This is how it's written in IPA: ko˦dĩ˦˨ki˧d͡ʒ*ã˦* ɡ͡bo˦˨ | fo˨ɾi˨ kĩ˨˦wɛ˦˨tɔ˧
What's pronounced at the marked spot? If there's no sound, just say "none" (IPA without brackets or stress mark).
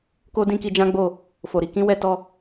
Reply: ã˦